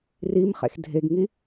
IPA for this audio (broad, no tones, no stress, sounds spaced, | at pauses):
r i m χ ḛ x dʱ e ɡ ŋ i